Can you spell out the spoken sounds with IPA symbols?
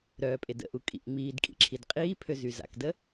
ɾ œː pʼ e d ə̰ ʔ u kʼ ḭ ʔ ŋ͡m iː d kʼ ḭ ǁʰ i d qʼ iː pʰ ø z y z a̰ k d ə

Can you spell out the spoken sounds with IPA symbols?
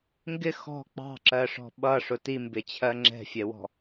ŋ ɡ ɪ x ɔ̤ k͡p ɑ̤ ǁ ɜ ʂ ɔ̤ ɓ ʌ ʂ ʊ t i m b ɪ t͡ɕʰ ɜ ŋ͡ǁ ɛ̤ fʲ ɛ w ɔ̤

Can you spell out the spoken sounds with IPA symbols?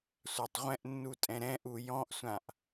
sʷ a tˤ ʁʷ ɛ̃ ʔ nː u tʼ ɛ̃ ɾ ɛ̃ ʔ u j ɔ̃ ʔ sʷ ã ʔ

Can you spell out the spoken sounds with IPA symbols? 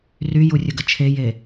r y j u rʲ ə ɡ ə t͡ʃʰ e j e

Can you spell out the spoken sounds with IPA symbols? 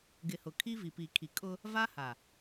ɡ ɪ˨ h ʊ˨ kʰ i˦ v i˨ p i˨ kʰ i˨ kʼ ʊ˦ | v a˦ h a˨

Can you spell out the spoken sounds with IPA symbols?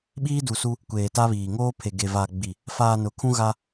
ɓ iː˦ d u˨ s u˦ | kʷ eː˨ t a˦ β iː˨ ŋ oː˦ pʰ e˨ ɡ e˨ v aː˨ ɡ͡b i˨ | f aː˨ n ʊ˨ kʰ ũ˦ ɣ a˦

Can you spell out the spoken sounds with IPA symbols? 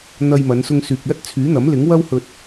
n̪ ɐ˧ j m ɐ˨˧ n s ʊ˧ ŋ s yː˨ k̚ l ɐ˥ t̚ t͡sʰ yː˨˥ n̪ ɐ˨˥ m l ɪ˨˥ ŋ w ɐ˥ w h ɵ˨ t̚

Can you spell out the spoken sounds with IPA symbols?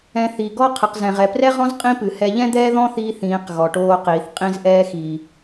ɛ̃˧ θ i˨ ɡ ɔ˦ qʰ ɨ˨ q z ɛ̃˨ ʁ ɛ˨ p r ɛ˦ ʁ ɔ̃˦ z qʼ ĩ˦ p ɨ˨ h ɛ˧ ʎ ɛ̃˦ d̪ ɛː˦ ð ɔ̃˦ θ iː˧ θ ĩː˨˦ q ɣ ɔ˨ ʈ oː˧ q iː˨ θ qʼ ĩ˧ z ʔ ɛː˧ x iː˨

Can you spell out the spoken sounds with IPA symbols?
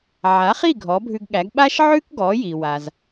ʕ a˩˥ χ i˥˩ ɡʱ ɔ˩˥ bʱ ʉ˧ ɡ ɠ æ˩˥ ɡ ɓ a˥ ʃ ʕ ʉ˥ k ɡ ɔ˩˥ j i˩ w a˩ z

